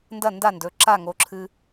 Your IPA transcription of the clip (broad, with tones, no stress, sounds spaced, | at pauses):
n d ɐ˥˨ n d a˥˨ n d ɵ˩˧˩ ǁ a˥˨ ŋ o˨˥ ǁʰ ɨ˦